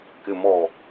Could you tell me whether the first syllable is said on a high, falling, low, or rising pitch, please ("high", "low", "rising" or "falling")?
low